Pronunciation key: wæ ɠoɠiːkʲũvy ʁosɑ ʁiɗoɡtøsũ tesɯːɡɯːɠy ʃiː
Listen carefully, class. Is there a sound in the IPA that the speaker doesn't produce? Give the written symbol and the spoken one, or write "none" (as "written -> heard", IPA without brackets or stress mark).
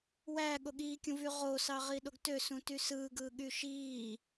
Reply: e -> y